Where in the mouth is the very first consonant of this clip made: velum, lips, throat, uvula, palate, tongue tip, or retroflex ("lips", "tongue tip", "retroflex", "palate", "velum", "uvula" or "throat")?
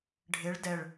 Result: retroflex